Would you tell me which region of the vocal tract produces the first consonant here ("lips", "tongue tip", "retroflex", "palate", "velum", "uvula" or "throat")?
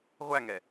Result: uvula